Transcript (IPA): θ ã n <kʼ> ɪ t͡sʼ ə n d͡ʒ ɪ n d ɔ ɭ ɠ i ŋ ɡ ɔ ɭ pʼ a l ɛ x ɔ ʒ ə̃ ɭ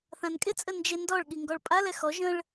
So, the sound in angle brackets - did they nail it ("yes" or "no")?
yes